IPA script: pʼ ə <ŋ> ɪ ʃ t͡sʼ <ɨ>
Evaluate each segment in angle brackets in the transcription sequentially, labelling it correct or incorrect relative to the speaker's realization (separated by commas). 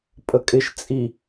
incorrect, incorrect